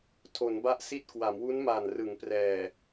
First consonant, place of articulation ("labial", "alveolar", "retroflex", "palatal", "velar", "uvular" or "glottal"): alveolar